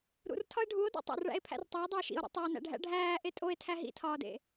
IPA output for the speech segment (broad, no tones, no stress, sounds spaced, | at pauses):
ɾ ṵ r tʰ ɒ e̯ ɖʱ u o̯ d ḛ tˤ o̰ r ɭ æ̰ e̯ pʰ æ̰ r tˤ æ o̯ dˤ o e̯ ʃ ḭ o̯ ɾ ḭ tˤ u o̯ n æ̰ ɖʱ æ̰ ɖʱ æː ʔ e tʼ o e̯ tʰ æ ɦ ḭ tʰ ɒː d ḛ